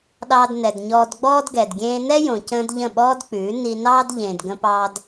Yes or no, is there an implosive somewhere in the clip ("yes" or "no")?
yes